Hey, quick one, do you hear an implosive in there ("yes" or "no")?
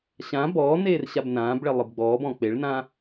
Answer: no